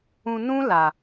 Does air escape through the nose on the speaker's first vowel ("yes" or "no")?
yes